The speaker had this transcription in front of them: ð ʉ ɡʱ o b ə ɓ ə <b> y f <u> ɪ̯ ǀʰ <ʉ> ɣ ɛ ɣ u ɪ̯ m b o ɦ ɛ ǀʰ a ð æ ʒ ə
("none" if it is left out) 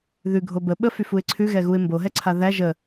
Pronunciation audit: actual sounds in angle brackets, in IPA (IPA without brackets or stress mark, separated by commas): f, u, ʉ